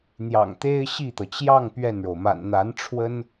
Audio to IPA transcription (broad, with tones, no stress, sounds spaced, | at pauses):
n̪ j ɑ̰˨˩ ŋ t̪ e˥ ɪ̯ ɕ i˥˩ t̪ ɤ˩ t͡ɕ j ɑ˥˧ ŋ p ɥ ɛ˥˩ n ɻ o˩ ʊ̯ m a̰˨˩ n n̪ a˧˥ n ʈ͡ʂʰ w ə˥ n